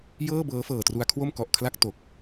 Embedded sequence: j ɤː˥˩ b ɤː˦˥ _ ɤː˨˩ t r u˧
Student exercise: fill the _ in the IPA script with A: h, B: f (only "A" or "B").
B